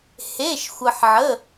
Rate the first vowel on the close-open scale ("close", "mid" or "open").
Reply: mid